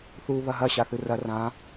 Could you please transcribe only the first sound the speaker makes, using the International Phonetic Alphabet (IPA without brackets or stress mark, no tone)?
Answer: θ